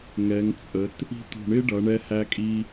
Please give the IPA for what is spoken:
ŋ ɛ˩˧ ŋ t͡sʼ ə˩˧ t | i̤˥ t̪ ṳ˧˩ ɳ ɪ˥ ɖ ʌ˩˧ ɳ ɛ˧ h æ˧ kʼ i˧

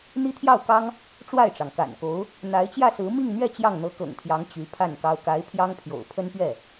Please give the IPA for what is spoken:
n̪ i˥ t̪ʰ j ɑ˥˩ ʊ̯ k ɑ˥ ŋ | ʈ͡ʂ w a˥˩ ɪ̯ ʈ͡ʂ ɑ˩ ŋ k a̰˨˩ n k o˧˥ ʊ̯ | n̪ a˧˥ ɪ̯ t͡ɕ j ä˥˩ s ɹ̩˧˥ m i˥˧ ŋ n̪ ɥ ɛ˥˧ t͡ɕ j ɑ˥˩ ŋ n̪ ɤ˧˥ k ɤ̰˨˩ ŋ t̪ʰ j ɑ˧˥ ŋ t͡ɕ y˧˥ pʰ a˥˩ n k ɑ˥ ʊ̯ k a˧˥ ɪ̯ pʰ j ɑ˥ ŋ pʰ j o̰˨˩ ʊ̯ pʰ ə˥ n p ɥ ɛ˥˩

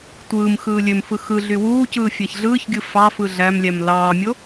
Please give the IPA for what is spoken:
tʷ ɯː m x ɯː lʲ ø m f ɯ x ɯ ɮ y w uː c ɯː fʲ æ ç ɮ ɯː ç ɡʲ ɯ f ɑ f ɯ ɮ æ m lʲ æ m l ɑː mʲ o

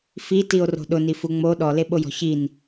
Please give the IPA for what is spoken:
f i t i o̯ r o̤ ɗ ʊ n i f u ŋ͡m o ɗ ɔ l e ɓ o j ɔ̤ ç i n

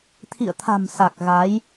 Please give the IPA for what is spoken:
t̪ʰ ḭ˧˨ ə̯ t̪ʰ a̤˨˩ m s a˨˩ k̚ ɣ a˨˦ j

